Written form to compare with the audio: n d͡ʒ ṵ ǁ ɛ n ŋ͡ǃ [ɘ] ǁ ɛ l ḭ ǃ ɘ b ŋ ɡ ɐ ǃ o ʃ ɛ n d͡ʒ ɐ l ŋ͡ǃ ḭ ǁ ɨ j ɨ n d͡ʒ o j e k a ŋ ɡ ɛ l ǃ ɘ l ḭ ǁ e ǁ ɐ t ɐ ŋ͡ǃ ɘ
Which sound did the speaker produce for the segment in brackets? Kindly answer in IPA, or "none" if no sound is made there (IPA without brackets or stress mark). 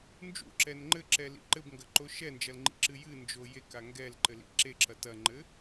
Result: ɘ